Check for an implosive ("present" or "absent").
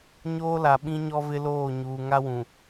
present